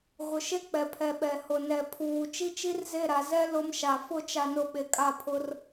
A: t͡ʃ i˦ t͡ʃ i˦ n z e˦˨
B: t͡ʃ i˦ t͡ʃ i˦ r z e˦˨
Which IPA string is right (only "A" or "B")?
B